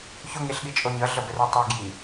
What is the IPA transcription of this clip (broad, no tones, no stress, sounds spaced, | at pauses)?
ç o ŋ e ɬ ɠ i t͡ʃʼ o ɲ ʌ ɮ ʌ b ɛ r ɛ tˤ ʌ ɡ j i